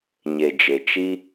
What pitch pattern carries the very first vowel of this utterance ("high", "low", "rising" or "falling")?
low